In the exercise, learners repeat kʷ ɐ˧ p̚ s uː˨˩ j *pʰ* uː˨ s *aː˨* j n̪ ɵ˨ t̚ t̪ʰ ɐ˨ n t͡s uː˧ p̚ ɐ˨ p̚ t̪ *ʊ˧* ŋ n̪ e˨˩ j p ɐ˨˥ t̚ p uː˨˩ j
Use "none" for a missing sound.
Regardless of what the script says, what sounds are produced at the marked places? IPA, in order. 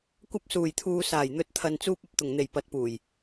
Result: t̪ʰ, aː˨˩, ʊ˨˩

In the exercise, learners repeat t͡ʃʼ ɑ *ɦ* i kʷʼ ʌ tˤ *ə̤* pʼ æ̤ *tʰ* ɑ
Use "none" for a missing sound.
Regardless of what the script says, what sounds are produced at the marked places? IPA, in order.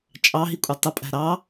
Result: ɦ, ə, ɾ

